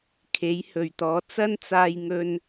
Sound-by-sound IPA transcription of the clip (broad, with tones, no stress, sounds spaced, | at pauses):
kʰ e˨˥ j h ɵ˨˩ ɥ t̪ ɔː˨˥ t͡s ɐ˥ n t͡s aː˧ j ŋ ɵ˧ n